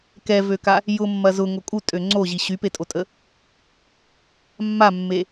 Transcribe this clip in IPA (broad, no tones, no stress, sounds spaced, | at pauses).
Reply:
k ɛ v ø k a | j ʊ mː ɐ z ʊ ŋ o kʼ u tʼ ø ŋ͡ǀ o ʑ i ɕ y p e tʼ o tʼ ə | mː a mː e